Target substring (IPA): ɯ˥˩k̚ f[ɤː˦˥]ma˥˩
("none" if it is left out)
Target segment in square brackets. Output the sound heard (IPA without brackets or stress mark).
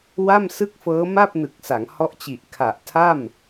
ɤː˦˥